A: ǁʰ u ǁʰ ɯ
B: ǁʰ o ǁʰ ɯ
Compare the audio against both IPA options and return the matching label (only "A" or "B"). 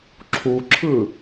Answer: A